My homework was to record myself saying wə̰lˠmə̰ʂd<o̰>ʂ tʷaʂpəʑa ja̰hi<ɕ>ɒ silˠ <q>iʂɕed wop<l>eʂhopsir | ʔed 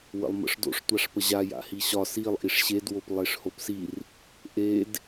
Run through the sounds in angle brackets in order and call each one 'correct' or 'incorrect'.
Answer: correct, correct, incorrect, incorrect

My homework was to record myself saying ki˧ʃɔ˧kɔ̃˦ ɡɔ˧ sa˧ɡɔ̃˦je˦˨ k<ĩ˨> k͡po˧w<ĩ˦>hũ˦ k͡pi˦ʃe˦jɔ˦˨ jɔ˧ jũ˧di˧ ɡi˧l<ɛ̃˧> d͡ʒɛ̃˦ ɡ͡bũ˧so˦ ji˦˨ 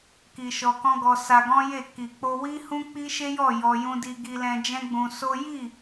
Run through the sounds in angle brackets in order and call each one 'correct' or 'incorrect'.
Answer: incorrect, incorrect, correct

